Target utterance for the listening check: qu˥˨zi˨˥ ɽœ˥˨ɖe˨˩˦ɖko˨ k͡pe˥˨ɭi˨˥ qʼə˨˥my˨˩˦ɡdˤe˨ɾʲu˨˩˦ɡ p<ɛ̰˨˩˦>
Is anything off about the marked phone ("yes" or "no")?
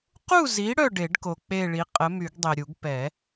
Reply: yes